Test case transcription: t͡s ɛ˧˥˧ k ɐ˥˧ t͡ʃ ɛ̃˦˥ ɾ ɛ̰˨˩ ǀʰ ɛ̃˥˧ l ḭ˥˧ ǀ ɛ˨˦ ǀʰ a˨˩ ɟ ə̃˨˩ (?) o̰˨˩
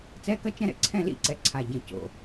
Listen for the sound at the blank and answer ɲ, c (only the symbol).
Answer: c